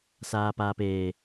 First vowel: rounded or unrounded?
unrounded